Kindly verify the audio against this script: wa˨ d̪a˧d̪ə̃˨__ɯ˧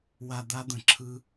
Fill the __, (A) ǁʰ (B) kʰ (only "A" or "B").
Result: A